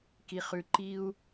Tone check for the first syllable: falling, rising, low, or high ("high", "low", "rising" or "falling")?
low